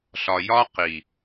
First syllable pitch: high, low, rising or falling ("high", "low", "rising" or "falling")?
low